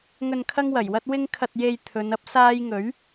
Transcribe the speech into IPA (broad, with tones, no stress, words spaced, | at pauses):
ŋɵ˨nkʰɐ˧ŋwɐ˨˩jwɐ˧t̚ wɪ˧ŋkʰɐ˨t̚je˨j t̪ʰɵ˨˧nɐ˥p̚ saː˧jŋɵ˨˥ɥ